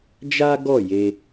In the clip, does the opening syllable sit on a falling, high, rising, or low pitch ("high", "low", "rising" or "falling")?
high